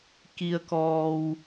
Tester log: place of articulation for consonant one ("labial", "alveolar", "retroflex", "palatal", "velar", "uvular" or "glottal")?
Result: velar